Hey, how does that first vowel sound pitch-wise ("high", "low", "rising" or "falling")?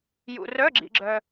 low